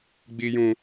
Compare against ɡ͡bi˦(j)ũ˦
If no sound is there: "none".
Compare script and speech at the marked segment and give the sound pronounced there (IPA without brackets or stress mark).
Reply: j